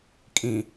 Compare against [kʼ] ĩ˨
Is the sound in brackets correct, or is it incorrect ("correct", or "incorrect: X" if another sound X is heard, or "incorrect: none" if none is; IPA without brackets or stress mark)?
correct